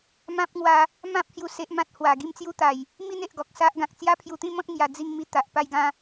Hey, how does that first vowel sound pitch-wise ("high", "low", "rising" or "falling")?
high